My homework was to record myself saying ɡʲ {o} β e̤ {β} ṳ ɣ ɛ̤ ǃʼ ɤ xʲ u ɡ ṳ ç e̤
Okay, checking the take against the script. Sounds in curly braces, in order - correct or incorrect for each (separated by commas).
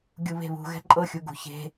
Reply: incorrect, correct